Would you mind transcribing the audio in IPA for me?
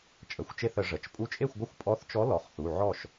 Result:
t͡ʃʼə˩˧˩xʷt͡ʃe˥˨θə˧˩˧ ʐə˩˧˩t͡ʃ pʼu˧˥t͡ʃʼe˥˨xʷɡʷə˥˨xʷ pʼɔ˧˥θt͡ʃɔ˧˥ lɔ˩˧˩χθu˩˧˩ ʕɔ˥˨ʃ

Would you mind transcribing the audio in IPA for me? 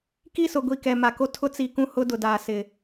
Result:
ki˦˨sʊ˨ɡʷi˨ kɛ˨ma˨ko˦ tʰʊ˦t͡si˨kũ˦ hʊ˦dʊ˨daː˨ sɪ˨

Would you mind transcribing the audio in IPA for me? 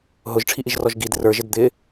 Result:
ɦʊʒʈ͡ʂʰiʔiʒrɔʒ ɡid rə˞ʒɪd d̪ɪ

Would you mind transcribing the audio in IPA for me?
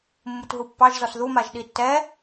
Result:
mːutɦupːɑʒzɔs ðumaʒ ɗitːɛ

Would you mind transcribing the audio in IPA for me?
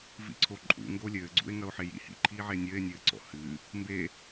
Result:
vḭǀʰoǃʼṵ ŋɡolʲɘːɡ͡ǀṵe̯ ŋɐo̯ħejḭ hḭ ǃʰiːʕenʲɘːe̯ nʲɘːǀɔ̰hɨ | mbe

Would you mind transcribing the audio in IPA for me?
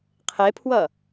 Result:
qʰepʰwʌ

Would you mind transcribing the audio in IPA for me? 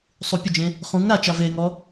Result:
sˤu pʲʊd͡ʒẽ | χũŋ ɾat͡ʃa veŋɔ

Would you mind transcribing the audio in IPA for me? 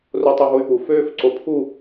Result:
rotˤœɦoy̯pu føːfǀopʰu

